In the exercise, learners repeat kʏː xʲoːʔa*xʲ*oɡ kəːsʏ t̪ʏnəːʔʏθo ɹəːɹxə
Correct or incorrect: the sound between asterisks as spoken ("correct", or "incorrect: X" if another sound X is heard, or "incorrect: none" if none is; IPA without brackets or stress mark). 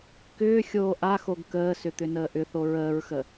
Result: incorrect: x